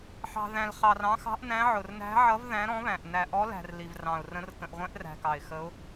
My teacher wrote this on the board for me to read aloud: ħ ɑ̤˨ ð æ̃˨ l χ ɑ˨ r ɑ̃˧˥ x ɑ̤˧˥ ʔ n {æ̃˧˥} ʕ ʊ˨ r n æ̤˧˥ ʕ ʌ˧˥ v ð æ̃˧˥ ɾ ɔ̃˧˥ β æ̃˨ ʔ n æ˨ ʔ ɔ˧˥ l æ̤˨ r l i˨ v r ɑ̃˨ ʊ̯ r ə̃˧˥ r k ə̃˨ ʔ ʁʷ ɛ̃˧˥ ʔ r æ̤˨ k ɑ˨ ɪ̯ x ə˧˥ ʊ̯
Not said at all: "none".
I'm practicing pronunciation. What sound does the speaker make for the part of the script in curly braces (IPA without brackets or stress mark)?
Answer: æ̃˧˥